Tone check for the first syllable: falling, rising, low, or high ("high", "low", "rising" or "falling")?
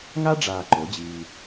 high